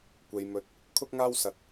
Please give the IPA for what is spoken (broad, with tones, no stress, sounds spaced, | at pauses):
kʷ e˨ j m ɵ˨˥ t̚ | kʰ ʊ˥ k̚ ŋ aː˥ w s ɐ˨˥ t̚